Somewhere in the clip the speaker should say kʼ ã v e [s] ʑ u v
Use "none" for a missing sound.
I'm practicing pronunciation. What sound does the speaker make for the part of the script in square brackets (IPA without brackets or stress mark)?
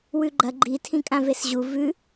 s